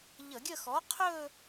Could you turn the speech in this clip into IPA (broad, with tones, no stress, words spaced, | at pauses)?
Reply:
ʎə˧˩˧ɡʲə˥˧ xɔ˩˥qʰɵː˥˧